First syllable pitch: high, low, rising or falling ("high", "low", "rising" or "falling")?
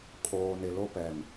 low